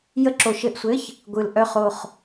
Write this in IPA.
j ə˧˥˧ ǁ o˨ ʃ ɘ˦˨ ʔ sʷ ɘ˧˥˧ ç | ɡʷ ɯ˨ l ʔ œ˦˨ χ o˦˨ χ

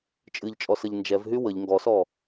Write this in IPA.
t͡ʃʼ ɨ ʎ t͡ʃʼ ɔ s ə ʎ n d͡ʒ ɛ v ɦ y w ə ʎ ŋ ɡ ɔ s ɔ

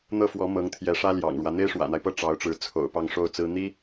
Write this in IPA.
n̪ ɤ˥˩ f w ɔ˧˥ m ɤ˧˥ ŋ t̪ʰ j ɛ˧˥ ʂ ä˥ l j ɑ̰˨˩ ŋ ɻ w ä˦ n̪ e˥ ɪ̯ ʂ w ä̰˨˩ n̪ a˦ ɪ̯ p ɤ˥˩ ʈ͡ʂ ɑ˧˥ ʊ̯ ʈ͡ʂ ɻ̩˧˥ t͡sʰ o̰˨˩ ʊ̯ p ɑ˥˧ ŋ ʂ o˥˩ ʊ̯ t͡s ɹ̩˥ n̪ i˥

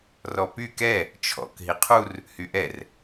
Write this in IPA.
r ɔ p y k ɛ | t͡ʃʰ ɔ̰ k ɦ i qʰ u r | h y ʔ ɛ r

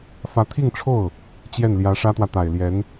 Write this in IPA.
f ä˧˥ t̪ʰ i˥˧ ŋ ʈ͡ʂʰ o˥˩ ʊ̯ | t͡ɕ j ɛ˥˩ n l j ä˧˥ ʂ ä˥ t̪ w ä˨ t̪ a˨˩ ɪ̯ l j ɛ˧˥ n

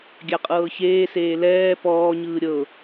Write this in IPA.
ɡʲ a qʼ ɤː ç eː s eː l ɛː p ɔː ɲ ɯː ɾʲ ɤ

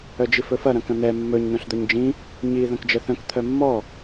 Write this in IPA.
œ d͡ʒ i f ɵ f ɐ ɾ ɐ̃ k ɐ̃ n̪ ɛ mː ɵ ɲ n̪ œ̃ ɬ d̪ œ ɲ d͡ʒ ĩ | ɲ i ð ɐ̃ k d͡ʒ ə θ œ̃ k t̪ʰ œ mː ɔ

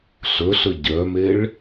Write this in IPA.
ɬ ɵ ɬ ɵ ɟ œ m e ɭ

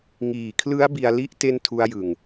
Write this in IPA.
ŋ iː˨˩ kʰ l ɯ˦˥ a̯ b i˧ a̯ l i˦˥ ʔ t e˥˩ n tʰ u˦˥ a̯ j ɯ˨˩ ŋ

